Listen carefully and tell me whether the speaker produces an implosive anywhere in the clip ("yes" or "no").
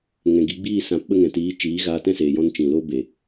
yes